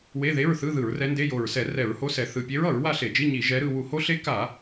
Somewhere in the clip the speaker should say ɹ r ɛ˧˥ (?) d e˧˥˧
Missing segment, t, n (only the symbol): n